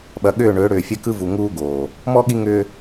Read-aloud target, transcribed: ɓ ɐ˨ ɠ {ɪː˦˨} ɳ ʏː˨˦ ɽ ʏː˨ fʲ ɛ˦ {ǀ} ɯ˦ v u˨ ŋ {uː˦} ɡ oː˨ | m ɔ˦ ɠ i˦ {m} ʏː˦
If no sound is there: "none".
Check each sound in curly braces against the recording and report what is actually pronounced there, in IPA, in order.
ʏː˦˨, k, uː˦, ŋ

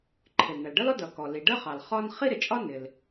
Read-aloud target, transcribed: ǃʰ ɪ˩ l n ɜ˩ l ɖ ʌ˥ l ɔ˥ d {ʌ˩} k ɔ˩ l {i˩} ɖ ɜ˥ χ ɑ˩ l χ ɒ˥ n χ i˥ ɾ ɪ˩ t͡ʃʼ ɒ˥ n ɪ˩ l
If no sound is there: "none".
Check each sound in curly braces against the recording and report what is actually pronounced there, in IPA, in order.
ʌ˩, i˩

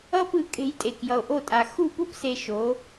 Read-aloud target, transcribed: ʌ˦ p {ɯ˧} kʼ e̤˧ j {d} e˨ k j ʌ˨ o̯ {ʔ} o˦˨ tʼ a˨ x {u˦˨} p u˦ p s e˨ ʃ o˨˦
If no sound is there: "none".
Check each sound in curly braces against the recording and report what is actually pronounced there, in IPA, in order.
ɯ˧, tʼ, ʔ, u˦˨

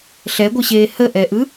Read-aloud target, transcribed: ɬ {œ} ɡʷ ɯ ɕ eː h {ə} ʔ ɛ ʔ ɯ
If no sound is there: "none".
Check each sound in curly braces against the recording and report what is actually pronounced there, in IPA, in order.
ɛ, ə

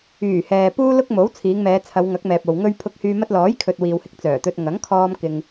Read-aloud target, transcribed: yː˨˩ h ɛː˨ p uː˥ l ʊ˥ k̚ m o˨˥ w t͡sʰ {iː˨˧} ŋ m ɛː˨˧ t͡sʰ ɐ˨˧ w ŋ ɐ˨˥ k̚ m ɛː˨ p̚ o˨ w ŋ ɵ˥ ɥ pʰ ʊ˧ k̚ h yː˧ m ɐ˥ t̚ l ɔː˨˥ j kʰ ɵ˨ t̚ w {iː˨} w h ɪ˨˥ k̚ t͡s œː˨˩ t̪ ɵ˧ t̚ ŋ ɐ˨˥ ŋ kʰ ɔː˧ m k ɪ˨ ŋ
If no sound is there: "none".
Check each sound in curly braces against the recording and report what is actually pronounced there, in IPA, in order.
iː˨˧, iː˨

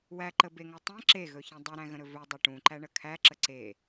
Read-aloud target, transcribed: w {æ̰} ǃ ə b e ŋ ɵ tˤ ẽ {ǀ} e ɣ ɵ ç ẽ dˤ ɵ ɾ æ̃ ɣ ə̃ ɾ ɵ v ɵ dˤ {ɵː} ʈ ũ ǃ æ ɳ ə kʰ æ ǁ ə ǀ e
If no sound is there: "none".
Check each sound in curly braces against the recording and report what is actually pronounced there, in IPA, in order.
æ, ǁ, ɵ

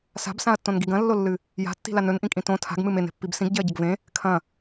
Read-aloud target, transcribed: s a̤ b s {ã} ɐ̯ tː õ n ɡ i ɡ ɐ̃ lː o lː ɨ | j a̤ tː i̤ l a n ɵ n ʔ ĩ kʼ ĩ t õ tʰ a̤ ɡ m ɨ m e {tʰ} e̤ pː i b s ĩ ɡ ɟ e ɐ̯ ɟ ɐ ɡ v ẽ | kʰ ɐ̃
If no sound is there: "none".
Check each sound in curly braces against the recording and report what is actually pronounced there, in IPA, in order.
ã, n

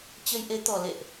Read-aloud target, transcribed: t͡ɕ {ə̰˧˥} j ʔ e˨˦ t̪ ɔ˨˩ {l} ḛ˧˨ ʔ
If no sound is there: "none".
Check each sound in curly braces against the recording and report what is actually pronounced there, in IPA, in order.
ə˧, l

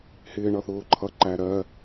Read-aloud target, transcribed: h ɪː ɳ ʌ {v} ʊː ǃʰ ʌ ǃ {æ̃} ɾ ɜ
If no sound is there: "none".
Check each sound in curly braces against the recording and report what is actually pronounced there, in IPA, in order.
θ, æ

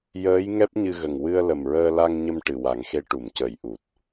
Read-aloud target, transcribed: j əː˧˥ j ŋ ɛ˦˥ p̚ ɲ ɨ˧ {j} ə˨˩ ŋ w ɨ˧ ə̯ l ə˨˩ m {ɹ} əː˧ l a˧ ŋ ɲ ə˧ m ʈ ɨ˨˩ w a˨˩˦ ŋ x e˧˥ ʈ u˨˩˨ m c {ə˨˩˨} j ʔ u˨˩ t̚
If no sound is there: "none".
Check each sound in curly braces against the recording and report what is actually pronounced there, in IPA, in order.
ɣ, ɹ, ə˨˩˦

